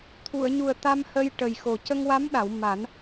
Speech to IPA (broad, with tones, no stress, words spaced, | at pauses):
t̪ʰu˨˩˨ə̯ɲu˨˩ə̯ t̪a˧mhə˧j ʈə˨˩jxo˨˩ cə˧ŋwa˧˥mɗa˨˩˨w ma˨˩˦n